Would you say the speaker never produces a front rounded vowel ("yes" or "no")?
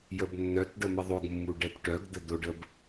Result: no